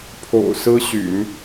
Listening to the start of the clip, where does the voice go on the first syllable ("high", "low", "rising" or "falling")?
low